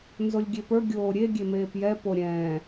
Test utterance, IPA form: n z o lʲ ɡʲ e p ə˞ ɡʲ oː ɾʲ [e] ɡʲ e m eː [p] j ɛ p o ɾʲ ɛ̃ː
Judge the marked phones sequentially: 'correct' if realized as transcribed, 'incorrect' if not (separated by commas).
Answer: correct, correct